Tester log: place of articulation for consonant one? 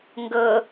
velar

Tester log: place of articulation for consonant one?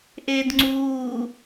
glottal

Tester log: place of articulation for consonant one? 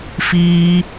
labial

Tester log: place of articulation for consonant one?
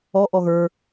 glottal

